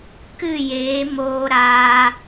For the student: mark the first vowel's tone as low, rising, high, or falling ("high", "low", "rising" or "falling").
falling